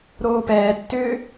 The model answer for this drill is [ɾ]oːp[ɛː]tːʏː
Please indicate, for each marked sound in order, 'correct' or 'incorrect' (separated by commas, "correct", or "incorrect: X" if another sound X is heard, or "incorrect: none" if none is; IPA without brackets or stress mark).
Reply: correct, correct